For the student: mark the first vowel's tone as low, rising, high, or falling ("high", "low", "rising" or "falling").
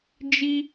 high